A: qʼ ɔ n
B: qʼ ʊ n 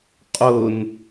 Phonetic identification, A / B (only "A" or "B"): B